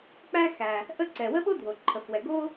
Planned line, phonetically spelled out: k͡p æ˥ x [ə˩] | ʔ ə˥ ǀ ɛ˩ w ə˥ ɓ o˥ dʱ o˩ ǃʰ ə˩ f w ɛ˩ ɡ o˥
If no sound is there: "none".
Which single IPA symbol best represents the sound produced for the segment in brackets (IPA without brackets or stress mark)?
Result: æ˩